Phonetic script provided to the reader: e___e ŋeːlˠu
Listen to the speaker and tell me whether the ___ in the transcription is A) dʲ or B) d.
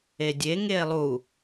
A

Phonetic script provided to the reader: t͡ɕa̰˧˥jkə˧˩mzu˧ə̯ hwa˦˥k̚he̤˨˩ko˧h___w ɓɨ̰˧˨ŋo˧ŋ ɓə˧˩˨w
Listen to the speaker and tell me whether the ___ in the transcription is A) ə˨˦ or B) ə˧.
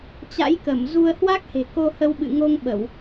B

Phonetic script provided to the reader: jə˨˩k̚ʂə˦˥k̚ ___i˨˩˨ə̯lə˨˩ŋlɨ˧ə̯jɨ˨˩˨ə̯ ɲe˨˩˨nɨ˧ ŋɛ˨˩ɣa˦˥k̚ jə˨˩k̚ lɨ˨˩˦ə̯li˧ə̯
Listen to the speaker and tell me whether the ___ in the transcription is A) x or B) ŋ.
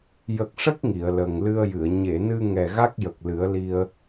B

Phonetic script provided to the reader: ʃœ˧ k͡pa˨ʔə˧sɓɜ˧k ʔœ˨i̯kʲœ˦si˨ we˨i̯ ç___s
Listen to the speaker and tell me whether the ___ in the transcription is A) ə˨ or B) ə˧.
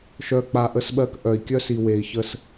B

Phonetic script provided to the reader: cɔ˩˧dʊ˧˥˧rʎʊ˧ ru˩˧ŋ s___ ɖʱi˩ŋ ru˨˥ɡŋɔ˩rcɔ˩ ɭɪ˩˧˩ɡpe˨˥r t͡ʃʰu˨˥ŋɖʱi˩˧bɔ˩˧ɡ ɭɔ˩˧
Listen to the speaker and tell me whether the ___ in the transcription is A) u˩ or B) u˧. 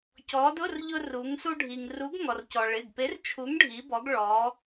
B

